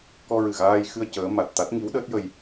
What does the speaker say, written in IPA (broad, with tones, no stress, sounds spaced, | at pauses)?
k ɔ˧ ɹ ɨ˨˩ ɣ aː˧ j x ɨ˧ ə̯ c əː˧˥ m a˨˩ t̚ t̪ a˦˥ t̚ ŋ i˧˥ w ɗ əː˦˥ t̚ j ə˧ j